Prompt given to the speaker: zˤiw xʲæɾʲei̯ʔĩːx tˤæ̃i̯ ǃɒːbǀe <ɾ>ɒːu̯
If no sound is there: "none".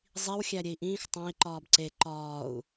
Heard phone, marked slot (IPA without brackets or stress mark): ǃ